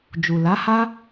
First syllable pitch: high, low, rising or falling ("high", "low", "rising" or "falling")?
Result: low